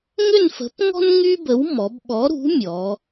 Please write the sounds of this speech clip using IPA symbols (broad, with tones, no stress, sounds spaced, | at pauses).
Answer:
ŋ ʏ˥˧ n f ə̤˨˥ p ŋ ɔ̤˥ n ŋ y˥ b ə˨˥ w m ɔ˩˧ b ɓ ɔ˨˥ ɾ ṳ˨˥ mʲ ɔ˩˧